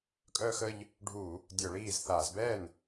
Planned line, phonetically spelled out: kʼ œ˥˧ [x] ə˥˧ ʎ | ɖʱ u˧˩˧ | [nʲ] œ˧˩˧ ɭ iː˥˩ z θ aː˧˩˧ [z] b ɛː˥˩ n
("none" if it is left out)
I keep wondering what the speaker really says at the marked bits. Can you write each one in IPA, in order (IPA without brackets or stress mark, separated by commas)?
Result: x, dʲ, z